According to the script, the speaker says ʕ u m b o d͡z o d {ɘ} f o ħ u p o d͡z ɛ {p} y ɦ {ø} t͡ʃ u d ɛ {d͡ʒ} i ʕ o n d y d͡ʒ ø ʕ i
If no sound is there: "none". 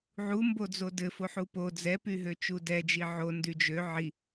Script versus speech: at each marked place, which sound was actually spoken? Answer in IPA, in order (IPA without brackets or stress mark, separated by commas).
ɘ, p, ø, d͡ʒ